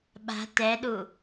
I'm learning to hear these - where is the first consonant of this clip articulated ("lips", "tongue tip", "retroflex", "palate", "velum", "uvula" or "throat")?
lips